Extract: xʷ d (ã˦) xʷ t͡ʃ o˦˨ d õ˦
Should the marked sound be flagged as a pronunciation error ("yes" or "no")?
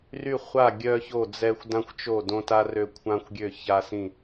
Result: no